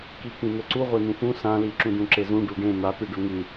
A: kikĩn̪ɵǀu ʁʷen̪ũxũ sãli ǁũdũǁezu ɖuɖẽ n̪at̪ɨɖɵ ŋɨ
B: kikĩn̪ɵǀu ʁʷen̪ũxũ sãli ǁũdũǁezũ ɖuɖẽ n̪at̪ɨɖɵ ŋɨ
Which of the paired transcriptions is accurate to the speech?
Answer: B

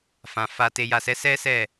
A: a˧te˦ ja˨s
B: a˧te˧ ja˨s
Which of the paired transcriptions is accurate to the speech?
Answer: B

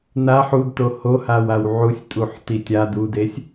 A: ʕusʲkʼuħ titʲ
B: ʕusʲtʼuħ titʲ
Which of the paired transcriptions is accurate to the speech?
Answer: B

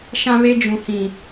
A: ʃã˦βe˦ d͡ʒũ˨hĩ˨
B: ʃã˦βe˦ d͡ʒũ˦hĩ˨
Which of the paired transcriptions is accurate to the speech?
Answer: A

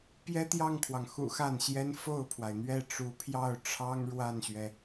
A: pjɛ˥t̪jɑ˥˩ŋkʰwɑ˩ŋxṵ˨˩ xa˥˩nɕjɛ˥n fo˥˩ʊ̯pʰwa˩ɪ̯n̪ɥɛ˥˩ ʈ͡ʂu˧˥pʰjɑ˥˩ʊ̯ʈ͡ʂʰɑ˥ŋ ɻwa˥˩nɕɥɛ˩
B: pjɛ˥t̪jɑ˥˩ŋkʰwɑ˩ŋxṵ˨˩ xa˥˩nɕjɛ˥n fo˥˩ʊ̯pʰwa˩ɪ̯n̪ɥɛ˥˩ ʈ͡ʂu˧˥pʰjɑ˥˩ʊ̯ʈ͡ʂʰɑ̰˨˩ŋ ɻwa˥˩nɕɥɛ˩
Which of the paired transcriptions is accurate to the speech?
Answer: A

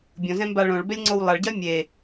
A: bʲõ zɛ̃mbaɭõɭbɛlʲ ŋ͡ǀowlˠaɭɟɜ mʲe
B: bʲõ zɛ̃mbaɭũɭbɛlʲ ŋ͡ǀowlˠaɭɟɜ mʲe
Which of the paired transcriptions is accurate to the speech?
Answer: A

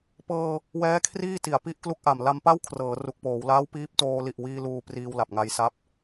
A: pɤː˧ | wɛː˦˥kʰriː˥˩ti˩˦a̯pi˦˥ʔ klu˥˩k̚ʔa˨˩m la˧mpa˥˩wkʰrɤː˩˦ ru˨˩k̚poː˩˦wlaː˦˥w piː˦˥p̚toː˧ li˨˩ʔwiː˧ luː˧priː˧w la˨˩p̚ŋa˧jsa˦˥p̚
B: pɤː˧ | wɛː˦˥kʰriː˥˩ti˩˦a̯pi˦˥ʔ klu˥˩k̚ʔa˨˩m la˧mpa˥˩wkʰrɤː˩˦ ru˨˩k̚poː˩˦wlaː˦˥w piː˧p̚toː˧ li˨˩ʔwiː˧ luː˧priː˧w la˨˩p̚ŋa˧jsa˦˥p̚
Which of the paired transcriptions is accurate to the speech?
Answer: A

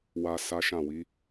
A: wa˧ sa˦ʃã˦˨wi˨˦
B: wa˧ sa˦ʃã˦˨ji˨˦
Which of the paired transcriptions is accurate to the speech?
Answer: A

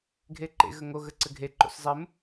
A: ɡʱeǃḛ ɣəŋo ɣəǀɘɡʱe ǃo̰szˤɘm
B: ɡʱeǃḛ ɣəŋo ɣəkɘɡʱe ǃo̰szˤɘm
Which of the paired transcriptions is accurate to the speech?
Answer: A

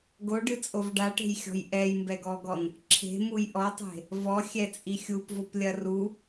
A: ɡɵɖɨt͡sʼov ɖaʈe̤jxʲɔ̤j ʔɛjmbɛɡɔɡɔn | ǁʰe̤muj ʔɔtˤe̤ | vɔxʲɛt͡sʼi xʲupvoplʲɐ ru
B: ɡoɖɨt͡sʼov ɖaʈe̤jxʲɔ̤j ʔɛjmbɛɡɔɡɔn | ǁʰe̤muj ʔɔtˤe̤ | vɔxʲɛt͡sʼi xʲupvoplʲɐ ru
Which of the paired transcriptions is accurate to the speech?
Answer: B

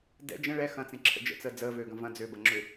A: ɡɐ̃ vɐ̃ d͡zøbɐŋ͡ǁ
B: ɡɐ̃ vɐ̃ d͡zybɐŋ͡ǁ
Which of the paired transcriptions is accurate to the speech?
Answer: A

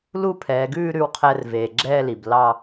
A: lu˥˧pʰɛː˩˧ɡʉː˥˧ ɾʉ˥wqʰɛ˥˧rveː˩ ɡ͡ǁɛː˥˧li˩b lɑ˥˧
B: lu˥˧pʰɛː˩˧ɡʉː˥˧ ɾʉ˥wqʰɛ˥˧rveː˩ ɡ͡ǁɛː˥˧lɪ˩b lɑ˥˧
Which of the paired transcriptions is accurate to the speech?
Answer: A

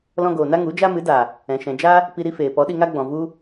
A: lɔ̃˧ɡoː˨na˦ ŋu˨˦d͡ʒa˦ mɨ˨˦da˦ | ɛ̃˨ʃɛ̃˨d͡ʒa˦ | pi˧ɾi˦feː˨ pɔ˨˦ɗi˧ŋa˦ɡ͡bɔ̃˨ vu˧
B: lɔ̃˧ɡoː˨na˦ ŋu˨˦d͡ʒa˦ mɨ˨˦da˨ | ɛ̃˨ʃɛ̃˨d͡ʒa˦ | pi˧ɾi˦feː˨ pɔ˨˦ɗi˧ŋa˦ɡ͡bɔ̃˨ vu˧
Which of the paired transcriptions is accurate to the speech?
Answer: B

